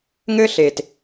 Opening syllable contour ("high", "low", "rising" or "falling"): high